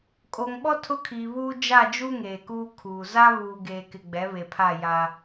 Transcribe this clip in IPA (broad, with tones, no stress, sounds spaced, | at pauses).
kʼ o˨ ŋ ɓ ɔ˦ tʰ ʊ˦ kʰ iː˨ β uː˦ d͡ʒ a˦˨ d͡ʒ u˦ ŋ eː˨ k uː˦ kʰ uː˨ z a˦ β uː˨ ɡ eː˨ k ɪ˨ ɡ͡b ɛ˨˦ β e˨ pʰ a˦˨ j a˦